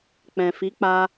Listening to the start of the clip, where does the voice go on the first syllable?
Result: low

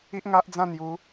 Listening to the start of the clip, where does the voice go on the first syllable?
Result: high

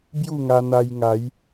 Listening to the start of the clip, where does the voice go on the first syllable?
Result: falling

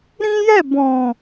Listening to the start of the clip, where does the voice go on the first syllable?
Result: high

